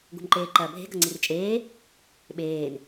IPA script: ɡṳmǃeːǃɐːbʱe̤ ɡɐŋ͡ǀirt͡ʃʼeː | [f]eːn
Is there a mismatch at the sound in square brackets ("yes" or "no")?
yes